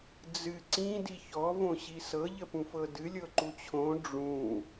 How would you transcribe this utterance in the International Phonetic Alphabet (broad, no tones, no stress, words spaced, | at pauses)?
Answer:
d͡zɨ ǀĩ diçɔ võɕisɤ ʎəpũfɤdɨ lʲɤǃut͡ɕʰõ ɖ͡ʐũ